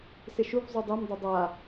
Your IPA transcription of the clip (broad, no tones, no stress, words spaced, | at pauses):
sɪʃuv zˤudˤɛm dˤodˤa